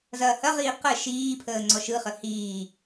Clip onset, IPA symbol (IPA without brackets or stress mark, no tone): z